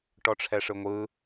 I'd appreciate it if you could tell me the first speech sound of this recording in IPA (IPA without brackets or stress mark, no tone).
ʈ